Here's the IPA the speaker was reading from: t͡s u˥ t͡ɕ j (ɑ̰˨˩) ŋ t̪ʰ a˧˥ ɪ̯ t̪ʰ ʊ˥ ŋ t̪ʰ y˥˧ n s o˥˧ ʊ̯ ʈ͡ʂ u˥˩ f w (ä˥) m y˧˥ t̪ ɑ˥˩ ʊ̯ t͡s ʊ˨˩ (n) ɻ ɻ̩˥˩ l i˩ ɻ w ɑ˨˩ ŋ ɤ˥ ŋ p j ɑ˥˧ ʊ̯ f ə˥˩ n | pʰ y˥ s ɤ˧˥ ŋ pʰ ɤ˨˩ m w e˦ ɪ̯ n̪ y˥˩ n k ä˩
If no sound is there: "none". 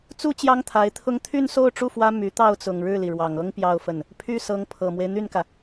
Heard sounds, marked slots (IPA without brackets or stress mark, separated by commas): ɑ˥, ä˥, ŋ